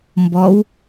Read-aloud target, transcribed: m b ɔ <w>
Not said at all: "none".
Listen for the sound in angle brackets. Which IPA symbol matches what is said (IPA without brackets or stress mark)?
w